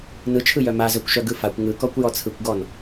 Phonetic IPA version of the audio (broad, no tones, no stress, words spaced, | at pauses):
nɯt͡ʃʰɯjœ mazœkʷʃœ ɡɯfakʷ ŋɯkɔkʷ jɔt͡sʰɯkʷɡɔn